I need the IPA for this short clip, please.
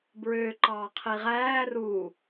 b ɹ ø ǃ ɑː qʰ i ʁ æː r u

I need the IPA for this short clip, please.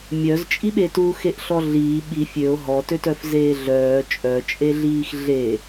mʲ œ z t͡ʃʼ i ɓ e t u x e ʔ ɬ ɔ ɮ iː ɓ i fʲ ø o̯ ɦ ɔ t ø t œ f z eː ɮ œː t͡ʃʼ œ t͡ʃʼ e ɮ iː x ɮ e

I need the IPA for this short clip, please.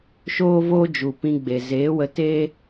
ʃ oː˦ v oː˦ d͡ʒ u˨ p ĩ˧ ɡ͡b e˨ z eː˨˦ w ə˧ t eː˦

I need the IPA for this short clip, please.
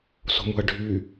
s o̤ m ṳ ɐ̯ ɖʱ y

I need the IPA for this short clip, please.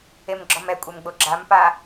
e m ɡ͡ǁ ɔ m ɛ kʷʼ e m ɡ͡b o ɡ͡ǁ a m p a

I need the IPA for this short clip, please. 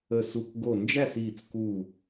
ə˧˩ s u˧˩ k ɡ o˧˩ n d͡ʒ æ˥˨ s iː˧˩ t͡s k u˧˩

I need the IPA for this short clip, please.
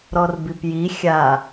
ɾ ɔ r b i p j i xʲ a

